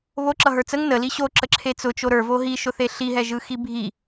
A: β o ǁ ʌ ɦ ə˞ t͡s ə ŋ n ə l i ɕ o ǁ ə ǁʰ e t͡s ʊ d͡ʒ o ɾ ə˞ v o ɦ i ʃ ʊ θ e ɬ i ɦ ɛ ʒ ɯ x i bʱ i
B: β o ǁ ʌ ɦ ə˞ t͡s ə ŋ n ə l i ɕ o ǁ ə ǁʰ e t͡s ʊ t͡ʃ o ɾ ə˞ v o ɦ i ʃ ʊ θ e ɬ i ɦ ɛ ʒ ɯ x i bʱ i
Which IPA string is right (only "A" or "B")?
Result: B